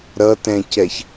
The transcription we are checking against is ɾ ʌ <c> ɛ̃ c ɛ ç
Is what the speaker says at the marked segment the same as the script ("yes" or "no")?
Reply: no